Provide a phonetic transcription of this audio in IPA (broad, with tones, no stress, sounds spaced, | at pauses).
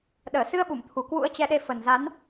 ɗ əː˧˩ s ɨ˧ ə̯ ɓ u˧˩ m t̪ʰ u˨˩ k w ṵ˧˥ ə̯ t͡ɕ ɛ˧ ɗ e˧ f ə˨˩ n z a˨˦ n